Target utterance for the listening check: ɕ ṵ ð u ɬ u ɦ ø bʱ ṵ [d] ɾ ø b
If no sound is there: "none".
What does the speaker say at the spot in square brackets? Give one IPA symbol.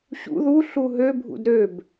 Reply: d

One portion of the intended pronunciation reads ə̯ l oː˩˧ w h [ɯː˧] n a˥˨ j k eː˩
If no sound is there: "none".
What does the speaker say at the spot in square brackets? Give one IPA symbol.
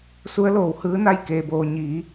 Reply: ɯː˧˥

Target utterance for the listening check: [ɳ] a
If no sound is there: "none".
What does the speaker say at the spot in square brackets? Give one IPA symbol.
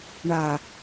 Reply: ɳ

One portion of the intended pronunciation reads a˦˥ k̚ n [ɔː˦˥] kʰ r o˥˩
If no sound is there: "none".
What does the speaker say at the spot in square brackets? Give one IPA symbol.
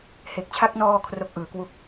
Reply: ɔː˧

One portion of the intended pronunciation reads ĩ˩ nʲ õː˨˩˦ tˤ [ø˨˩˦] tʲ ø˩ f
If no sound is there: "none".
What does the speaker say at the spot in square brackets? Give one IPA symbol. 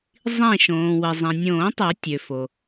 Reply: ø˨˩˦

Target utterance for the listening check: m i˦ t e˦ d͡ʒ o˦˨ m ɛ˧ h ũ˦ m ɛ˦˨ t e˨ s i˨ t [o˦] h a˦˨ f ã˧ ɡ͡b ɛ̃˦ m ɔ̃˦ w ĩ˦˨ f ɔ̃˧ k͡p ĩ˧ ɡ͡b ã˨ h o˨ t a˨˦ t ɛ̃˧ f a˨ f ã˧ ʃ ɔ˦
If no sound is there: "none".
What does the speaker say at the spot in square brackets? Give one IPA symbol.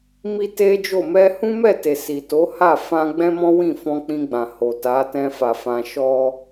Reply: o˨˦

